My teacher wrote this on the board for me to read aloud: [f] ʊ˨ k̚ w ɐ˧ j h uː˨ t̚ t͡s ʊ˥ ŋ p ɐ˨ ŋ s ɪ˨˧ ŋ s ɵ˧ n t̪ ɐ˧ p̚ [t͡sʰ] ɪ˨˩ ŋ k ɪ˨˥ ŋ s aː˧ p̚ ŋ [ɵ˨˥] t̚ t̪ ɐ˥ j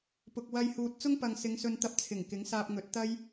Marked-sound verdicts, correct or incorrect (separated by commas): incorrect, correct, correct